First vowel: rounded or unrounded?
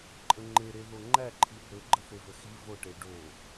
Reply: unrounded